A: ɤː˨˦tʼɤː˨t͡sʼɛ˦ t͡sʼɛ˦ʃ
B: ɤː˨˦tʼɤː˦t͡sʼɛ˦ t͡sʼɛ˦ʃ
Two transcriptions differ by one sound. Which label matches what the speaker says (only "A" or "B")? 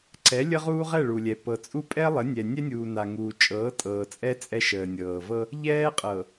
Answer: A